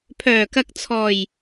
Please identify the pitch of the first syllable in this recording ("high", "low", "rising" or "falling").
low